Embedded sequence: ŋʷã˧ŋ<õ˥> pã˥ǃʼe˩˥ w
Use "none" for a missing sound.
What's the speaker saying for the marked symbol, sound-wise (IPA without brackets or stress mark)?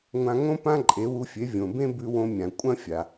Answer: õ˥